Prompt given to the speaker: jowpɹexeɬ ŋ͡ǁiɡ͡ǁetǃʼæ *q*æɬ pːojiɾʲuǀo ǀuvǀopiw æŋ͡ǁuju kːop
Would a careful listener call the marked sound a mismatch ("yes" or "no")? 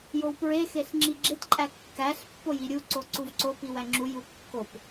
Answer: yes